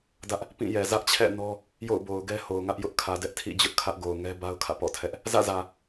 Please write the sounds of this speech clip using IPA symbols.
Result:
d ä˦ ʔ | p ĩ˦˨ j ɛ˨ z ä˦ ʔ t͡ɕʰ ɛ̰˦˨ n ɔ˦ | j o̰˦˨ ʊ̯ b o˨ ʊ̯ ɡ ɛ˦ h o˨ ʊ̯ ŋ ä˦ ʔ j ʊ˦ ʔ kʰ ä˨ d ɛ˦ ʔ tʰ ḭ˦˨ d͡ʑ ʊ˦ ʔ kʰ ä˦ ʔ ɡ o˨ ʊ̯ ŋ ɛ˦ b a˦ ʊ̯ kʰ ä̰˦˨ p ɔ̰˦˨ tʰ ɛ˦ ʔ | z ä̰˦˨ z ä˨

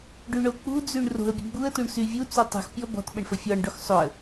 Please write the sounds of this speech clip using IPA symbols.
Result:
ɖ y ɳ o k͡p ṳ d͡z y ɳ r o̤ ə̯ bʲ ə̤ ɡ͡b u ə̯ t u ɳ s y vʲ u t͡s u tˤ ṳ x pʲ ɔ b ɔ̤ t ɓ ə ɳ f ə fʲ ɔ ɳ ɖ o x sˤ o ə̯

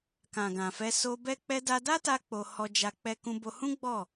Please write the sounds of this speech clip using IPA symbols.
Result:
k ã˨ ɡ ã˨ f ɛ˧ s o˧ b ɛ˦ k͡p ɛ˧ d a˧ d a˦ t a˧ k͡p o˧ h ɔ˧ d͡ʒ a˧ k͡p ɛ˧ k ũ˧ b o˧ h ũ˦ ɡ͡b ɔ˦˨

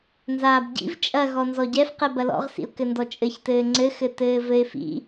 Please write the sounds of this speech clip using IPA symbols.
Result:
n z aː b ɟ ḭ v t͡ʃʼ ɐ ɣ ɔ n z ɔ ɟ ɛ f q ɛ b ɐ l ɔ̰ ʁ s ḭ ʊ̯ k ɘ n d ɔ t͡ʃʼ ɘ ç t ɘː ŋ͡ǀ ɘ x ɘ t ɘː v ɘ ɪ̯ f ḭ

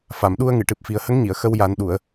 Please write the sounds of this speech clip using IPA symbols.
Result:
f a˨˩˨ m ɗ u˧ ə̯ ŋ ɨ˨˩˨ ʈ ɨ˨˩ p̚ f i˨˩ ə̯ h ə˧˥ ŋ ɲ i˨˩˨ ə̯ x ə˧ w j a˨˩˦ n ɗ u˨˩˨ ə̯

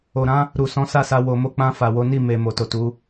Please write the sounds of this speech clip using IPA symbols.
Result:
o˨ ɾ ã˨˦ | ɾ u˨ s ɔ̃˨˦ s a˦˨ s a˧ w o˨ m o˧ k͡p ã˧ f a˨ w o˨˦ n i˦˨ m e˨ m o˨ t o˨ t u˨˦

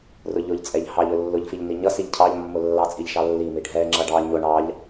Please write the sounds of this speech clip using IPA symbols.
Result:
r ʊ ʎ ʊ ʎ t͡sʼ ɛ ʎ h ɑ ʎ ʊ lː ʊ ʎ f i ʎ n i ɲ ʌ s i ʎ cʰ ɑ ʎ mː ʊ lː ɑ t͡sʼ i ʎ ʃ ɑ lː i m i ɖʱ ɛ ŋ͡ǁ ʌ ɖ ɑ ɲ ʊ ɳ ɑ ʎ

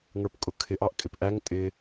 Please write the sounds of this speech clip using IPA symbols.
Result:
ŋ ə˞ p kʼ ʊ kʰ ɪ ʔ ɑ ʔ kʼ ɪ p ʔ æ ŋ tʼ ɪ

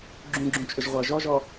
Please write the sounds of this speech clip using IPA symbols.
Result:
ɡ͡ǁ ũ ɡ͡ǁ ũ t͡ʃʼ ʏ ʒ ʁʷ ɐː ʒ ɔ ʒ ɔ

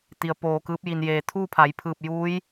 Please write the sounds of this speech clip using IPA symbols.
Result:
t̪ i˩ ə̯ p oː˧˩ k ɯː˧˥ p̚ j i˩ n j eː˩ t̪ʰ uː˥˨ pʰ a˩˧ j pʰ ɯː˧˩ p̚ j uː˧˥ j

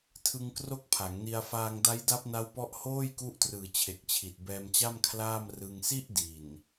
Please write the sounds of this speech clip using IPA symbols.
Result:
tʰ ɯ˧ ŋ k r o˥˩ k̚ pʰ a˩˦ ŋ n i˧ a̯ f aː˧ ŋ d a˦˥ j d a˦˥ p̚ n a˦˥ w p ɔ˦˥ ʔ h oː˥˩ j k u˦˥ ʔ t r ɯː˨˩ t͡ɕʰ e˨˩ k̚ t͡ɕʰ i˨˩ t̚ b ɛː˧ m t͡ɕ a˥˩ m kʰ l aː˥˩ m r ɯ˧ ŋ s i˥˩ ʔ d i˨˩ n

